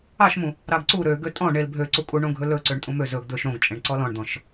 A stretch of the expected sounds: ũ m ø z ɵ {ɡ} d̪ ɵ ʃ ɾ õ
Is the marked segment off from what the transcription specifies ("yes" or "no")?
no